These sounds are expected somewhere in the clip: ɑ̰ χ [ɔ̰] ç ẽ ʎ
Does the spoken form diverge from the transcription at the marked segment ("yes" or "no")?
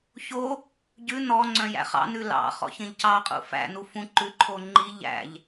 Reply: no